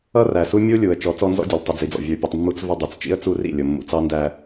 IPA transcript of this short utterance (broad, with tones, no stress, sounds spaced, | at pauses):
ʌ˦ r æ˨ s u˦ mʲ u˦ lʲ u˨ ə̯ t͡ʃ ɔ˨˦ t͡s ɔ˦ n z ɔ̰˦ dʲ ʌ˨ l tˤ ə˨ d͡z i˨ d͡z ɔ̰˨ vʲ ə˞˨ pʲ ɛ˨ tˤ mː u˦ t͡s v ə˦ dˤ i˨ t͡s t͡ʃ ḭ˦ ə̯ t͡s u˦ r ḭ˦˨ lʲ ʊ˨ mː ṵ˨ t͡s ɑ˦ n d æ˦